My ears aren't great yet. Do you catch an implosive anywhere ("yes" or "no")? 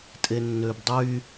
no